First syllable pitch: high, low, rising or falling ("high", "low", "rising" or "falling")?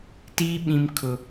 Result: high